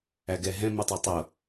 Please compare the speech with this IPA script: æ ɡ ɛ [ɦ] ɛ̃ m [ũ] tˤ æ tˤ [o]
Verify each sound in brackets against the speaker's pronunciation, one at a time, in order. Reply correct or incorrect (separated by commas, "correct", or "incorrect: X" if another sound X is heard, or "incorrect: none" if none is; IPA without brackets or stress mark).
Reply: correct, incorrect: u, correct